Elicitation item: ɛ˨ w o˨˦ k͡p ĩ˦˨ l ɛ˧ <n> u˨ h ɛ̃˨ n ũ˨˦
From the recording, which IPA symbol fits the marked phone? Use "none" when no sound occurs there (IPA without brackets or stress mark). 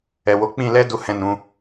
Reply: d